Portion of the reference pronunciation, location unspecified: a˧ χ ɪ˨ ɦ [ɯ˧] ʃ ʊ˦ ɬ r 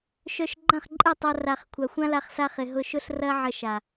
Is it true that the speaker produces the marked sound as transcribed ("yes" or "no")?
no